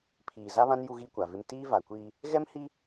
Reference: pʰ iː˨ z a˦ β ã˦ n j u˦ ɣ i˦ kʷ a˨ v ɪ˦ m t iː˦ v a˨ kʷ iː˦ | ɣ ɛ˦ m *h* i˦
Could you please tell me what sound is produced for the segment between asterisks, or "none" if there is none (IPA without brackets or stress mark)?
h